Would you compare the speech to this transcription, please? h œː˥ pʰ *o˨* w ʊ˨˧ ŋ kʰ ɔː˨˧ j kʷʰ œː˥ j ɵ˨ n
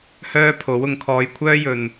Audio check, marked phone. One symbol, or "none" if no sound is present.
o˨˥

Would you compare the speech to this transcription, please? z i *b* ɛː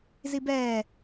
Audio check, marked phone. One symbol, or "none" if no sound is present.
b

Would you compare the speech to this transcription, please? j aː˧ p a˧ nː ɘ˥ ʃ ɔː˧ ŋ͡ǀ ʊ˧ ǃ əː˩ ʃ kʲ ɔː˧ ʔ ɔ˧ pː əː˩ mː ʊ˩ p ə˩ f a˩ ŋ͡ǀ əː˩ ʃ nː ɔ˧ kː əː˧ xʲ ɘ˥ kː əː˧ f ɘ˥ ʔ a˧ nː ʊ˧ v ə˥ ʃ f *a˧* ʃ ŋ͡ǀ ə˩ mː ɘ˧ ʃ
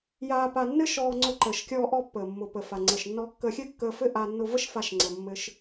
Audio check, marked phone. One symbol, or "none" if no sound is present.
a˧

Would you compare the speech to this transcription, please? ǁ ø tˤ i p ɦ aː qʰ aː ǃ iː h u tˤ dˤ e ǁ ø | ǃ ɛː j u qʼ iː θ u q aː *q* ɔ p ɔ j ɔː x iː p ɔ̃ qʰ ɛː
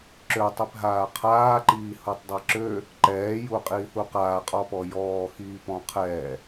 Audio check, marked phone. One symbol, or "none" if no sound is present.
qʼ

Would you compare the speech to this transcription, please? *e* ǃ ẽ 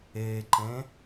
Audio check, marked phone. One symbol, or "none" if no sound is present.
e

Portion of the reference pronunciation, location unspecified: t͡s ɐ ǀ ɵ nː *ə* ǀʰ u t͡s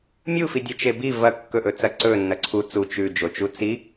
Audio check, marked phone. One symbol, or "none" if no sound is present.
ɐ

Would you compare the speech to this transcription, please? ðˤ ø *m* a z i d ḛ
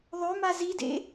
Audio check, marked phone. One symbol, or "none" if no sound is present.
m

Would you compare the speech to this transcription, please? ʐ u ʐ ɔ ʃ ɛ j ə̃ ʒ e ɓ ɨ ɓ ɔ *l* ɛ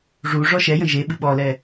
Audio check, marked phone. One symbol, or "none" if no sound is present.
l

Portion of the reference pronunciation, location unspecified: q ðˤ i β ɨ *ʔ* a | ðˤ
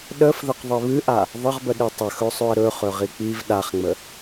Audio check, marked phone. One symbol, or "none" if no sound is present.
ʔ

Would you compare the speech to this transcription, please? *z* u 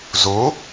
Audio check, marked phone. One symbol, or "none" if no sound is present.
z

